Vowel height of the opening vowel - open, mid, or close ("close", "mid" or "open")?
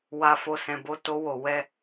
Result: open